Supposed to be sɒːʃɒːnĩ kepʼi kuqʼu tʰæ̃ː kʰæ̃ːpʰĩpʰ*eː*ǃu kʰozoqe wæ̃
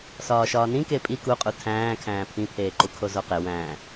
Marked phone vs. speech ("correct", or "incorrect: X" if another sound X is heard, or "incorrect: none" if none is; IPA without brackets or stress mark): correct